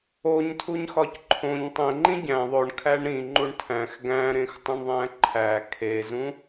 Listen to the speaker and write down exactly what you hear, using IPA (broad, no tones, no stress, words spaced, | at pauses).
oɲ tʰuɲxɒcǃʰõɲ tˤẽ ŋ͡ǃĩɟæ̃ ðˤoɳ kʰæɳɾĩ ŋ͡ǃuɳtʰæ̃x ɡæ̃ɾẽxtˤũɳ ðˤæ̃ǃʰæ kʰezũ